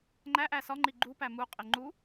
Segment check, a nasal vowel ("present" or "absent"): absent